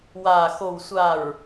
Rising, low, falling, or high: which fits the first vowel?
low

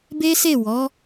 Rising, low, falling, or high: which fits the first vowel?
high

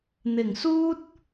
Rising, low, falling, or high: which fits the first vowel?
low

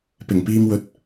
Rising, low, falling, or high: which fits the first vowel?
low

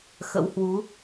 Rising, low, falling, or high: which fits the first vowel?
rising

